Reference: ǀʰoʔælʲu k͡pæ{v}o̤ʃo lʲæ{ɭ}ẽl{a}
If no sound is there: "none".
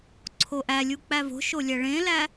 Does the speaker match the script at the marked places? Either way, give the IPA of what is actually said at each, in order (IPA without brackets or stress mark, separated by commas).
v, ɭ, æ